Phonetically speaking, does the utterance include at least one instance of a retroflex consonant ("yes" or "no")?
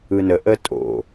no